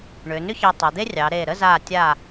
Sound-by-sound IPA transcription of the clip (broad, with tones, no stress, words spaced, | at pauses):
ɳʏː˩˧nʏ˥çɑ˧ tˤa˩˧d̪e˥rʲɑː˩˧ɾeː˧˩ ɾə˥˧zaː˧˩tʲa˧˩